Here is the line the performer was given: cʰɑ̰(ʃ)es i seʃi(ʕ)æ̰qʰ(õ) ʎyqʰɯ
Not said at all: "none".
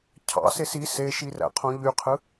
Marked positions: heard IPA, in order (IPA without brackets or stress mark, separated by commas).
s, r, õ